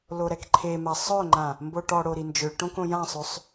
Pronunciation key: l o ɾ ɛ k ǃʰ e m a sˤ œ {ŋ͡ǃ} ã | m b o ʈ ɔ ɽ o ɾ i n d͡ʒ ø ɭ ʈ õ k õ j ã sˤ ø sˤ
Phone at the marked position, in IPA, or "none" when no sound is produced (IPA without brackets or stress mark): ŋ͡ǃ